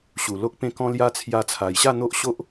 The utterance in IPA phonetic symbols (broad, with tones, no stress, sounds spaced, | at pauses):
ɕ u˨˩ l o˦ k̚ p ẽ˥˧ k ɔ̃˦ l j a˦ t͡sʰ j a˧ t͡sʰ a˨˩ j ɕ a˥˧ n̪ o˦ ʔ ɕ o˦ ʔ